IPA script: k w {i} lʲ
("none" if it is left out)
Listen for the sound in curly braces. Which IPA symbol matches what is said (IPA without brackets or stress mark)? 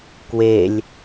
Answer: e